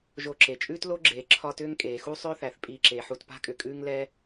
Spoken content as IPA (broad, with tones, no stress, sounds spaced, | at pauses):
ʒ o˨ ǁ e˩ t͡ʃʼ ʉː˥ t l o˥ ɡ͡ǁ eː˩ ǁʰ ɒ˦ t ʏː˥ ŋ kʼ eː˩ x u˥ sˤ ʏː˥ θ æ˩ θ pʼ iː˨ ǁ eː˩ ħ u˨ t p a̤˥ kʼ ʏ˩ kʼ ʉː˥ ŋ l ɛ˥